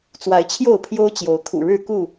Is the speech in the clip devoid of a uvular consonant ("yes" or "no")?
yes